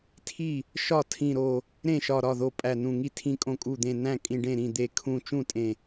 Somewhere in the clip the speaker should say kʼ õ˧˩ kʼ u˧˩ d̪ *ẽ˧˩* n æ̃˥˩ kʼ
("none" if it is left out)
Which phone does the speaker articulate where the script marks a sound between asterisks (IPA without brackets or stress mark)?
ẽ˧˩